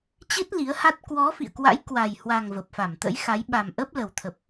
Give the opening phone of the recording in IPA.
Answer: t͡ɕ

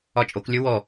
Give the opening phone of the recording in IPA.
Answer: ɒ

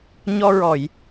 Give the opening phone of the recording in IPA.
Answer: ɲ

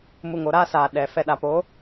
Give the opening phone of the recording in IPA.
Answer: m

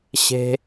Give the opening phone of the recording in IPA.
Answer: ɕ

